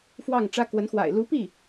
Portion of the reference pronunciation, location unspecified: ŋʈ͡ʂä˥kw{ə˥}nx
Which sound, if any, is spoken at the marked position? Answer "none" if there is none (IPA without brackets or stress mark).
ə˧˥